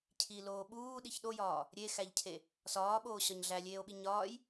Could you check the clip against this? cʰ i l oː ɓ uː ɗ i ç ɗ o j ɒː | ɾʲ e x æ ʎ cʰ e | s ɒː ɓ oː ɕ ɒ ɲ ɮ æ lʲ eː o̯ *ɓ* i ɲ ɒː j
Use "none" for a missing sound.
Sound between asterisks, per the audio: ɓ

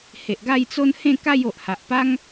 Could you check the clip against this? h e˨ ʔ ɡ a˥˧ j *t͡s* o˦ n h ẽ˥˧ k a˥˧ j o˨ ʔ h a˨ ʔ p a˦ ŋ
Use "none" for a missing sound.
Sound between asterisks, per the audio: t͡s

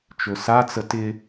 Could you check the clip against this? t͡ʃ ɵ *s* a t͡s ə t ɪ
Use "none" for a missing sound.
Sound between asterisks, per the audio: s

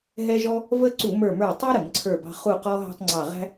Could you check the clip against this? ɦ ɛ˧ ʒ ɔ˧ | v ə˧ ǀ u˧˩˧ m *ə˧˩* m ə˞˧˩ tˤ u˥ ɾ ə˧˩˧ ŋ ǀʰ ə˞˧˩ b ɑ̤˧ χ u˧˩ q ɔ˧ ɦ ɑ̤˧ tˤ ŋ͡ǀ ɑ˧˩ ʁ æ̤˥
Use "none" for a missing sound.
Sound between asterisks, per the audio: ə˞˧˩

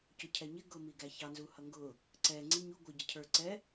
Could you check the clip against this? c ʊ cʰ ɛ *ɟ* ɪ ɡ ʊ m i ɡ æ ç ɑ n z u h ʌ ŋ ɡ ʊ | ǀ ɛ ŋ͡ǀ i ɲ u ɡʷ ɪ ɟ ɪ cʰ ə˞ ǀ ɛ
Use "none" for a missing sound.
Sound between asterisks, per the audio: ɲ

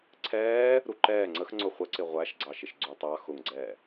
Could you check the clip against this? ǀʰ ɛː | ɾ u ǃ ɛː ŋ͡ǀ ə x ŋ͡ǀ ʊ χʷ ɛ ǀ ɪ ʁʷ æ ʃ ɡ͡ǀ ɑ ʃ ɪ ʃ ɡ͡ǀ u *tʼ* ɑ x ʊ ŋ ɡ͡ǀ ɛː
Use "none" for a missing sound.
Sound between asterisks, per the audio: tˤ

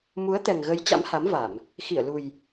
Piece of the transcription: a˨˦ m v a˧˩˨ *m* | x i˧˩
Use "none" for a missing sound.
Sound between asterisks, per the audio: m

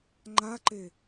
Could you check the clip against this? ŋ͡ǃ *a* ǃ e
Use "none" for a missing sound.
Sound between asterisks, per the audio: a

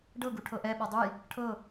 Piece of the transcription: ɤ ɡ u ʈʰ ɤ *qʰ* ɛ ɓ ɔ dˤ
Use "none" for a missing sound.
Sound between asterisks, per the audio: ʔ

